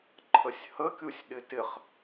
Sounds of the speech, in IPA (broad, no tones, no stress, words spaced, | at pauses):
ǃʰəsʲhəkʲusʲ ɗɪtɪχ